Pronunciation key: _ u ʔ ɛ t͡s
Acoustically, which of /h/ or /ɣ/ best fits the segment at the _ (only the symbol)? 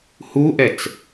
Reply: h